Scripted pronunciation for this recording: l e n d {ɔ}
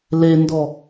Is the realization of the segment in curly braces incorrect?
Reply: no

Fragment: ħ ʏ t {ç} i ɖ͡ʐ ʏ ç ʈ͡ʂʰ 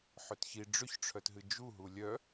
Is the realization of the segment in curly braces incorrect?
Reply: no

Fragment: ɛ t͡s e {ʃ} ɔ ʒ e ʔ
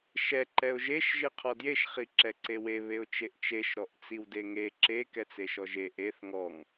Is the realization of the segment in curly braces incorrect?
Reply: no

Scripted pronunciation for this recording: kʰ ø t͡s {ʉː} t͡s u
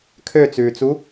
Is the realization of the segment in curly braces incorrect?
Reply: no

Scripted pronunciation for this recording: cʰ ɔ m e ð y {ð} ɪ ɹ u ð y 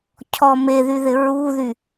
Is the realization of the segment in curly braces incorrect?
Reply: no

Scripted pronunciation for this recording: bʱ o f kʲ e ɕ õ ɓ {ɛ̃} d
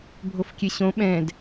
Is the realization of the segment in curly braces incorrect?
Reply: no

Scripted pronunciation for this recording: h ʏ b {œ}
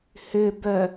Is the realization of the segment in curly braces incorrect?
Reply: no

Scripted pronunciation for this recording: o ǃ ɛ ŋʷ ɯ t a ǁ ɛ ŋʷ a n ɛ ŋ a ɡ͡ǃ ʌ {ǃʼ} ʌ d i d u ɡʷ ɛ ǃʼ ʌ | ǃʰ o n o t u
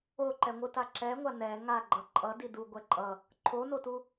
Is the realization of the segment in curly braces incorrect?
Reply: no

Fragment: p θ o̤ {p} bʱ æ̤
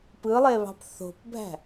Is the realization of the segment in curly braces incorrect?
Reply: no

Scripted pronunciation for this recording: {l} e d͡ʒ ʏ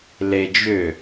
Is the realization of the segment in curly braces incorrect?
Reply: no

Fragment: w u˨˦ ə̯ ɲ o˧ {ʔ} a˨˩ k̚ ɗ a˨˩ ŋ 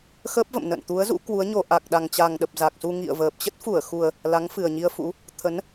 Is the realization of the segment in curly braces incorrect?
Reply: no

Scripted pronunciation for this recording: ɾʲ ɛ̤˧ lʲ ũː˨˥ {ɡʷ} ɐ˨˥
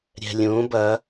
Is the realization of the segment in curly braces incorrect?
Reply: yes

